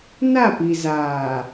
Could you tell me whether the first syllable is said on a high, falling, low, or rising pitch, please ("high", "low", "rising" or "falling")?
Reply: falling